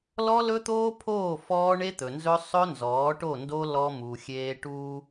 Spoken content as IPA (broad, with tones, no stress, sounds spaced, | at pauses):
l ɔ˦ l ɵ˦ t̪ oː˦ pʰ oː˦˨ f ɔː˦ ɳ e˦ t̪ ɵ˨ n z ɵ˦ sˤ ɵ˦ n z ɔː˨˦ ʈ o˦˨ n d o˦ l ɔ˦ m u˨ xʲ eː˦ ʈ uː˦